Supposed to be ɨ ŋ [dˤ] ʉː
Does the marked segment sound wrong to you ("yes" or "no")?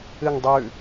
no